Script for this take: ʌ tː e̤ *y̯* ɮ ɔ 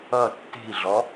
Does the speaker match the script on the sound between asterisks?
no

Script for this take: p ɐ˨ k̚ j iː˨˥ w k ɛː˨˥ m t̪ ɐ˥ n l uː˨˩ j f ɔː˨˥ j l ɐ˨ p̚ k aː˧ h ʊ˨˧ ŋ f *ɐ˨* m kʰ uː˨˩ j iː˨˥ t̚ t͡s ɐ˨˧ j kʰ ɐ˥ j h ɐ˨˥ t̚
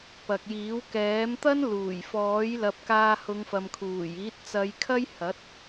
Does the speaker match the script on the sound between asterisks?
yes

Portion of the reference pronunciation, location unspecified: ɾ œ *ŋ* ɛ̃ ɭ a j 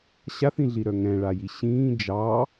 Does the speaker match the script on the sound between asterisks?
yes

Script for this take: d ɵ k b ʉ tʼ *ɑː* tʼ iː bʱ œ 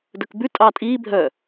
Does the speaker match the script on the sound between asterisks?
yes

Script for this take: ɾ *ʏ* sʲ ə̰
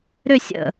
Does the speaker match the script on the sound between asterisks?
yes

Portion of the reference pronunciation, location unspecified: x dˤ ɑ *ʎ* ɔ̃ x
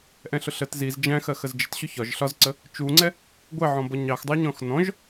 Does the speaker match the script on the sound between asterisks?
no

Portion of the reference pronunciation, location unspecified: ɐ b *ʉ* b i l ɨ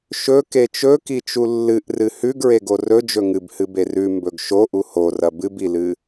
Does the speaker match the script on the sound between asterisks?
no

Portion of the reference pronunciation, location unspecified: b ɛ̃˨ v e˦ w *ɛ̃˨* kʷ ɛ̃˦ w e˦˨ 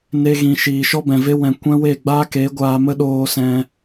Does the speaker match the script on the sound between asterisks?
yes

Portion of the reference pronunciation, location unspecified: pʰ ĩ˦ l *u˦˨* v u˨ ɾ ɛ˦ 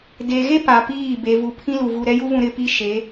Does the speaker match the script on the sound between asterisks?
no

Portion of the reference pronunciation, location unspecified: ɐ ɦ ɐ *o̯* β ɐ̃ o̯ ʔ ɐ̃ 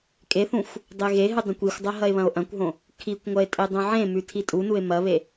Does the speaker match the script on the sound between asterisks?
no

